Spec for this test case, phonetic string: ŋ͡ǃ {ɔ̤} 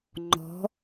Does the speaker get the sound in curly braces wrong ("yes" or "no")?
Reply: no